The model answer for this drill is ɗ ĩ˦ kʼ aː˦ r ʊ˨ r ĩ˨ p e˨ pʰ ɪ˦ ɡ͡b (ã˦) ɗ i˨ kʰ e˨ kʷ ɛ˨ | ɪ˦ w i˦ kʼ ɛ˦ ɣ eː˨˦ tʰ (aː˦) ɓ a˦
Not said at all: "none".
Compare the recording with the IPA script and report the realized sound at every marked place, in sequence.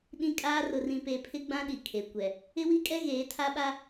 ã˦, a˦

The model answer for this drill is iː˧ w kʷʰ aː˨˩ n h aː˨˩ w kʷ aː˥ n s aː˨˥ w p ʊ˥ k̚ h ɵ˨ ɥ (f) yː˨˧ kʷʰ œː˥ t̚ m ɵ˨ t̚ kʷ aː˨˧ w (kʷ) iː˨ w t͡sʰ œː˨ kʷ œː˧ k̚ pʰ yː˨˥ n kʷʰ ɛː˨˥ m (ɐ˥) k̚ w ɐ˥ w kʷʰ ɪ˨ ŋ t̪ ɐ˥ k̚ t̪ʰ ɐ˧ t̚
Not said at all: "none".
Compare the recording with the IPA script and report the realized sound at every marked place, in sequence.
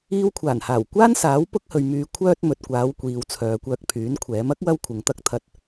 m, kʷ, ɐ˥

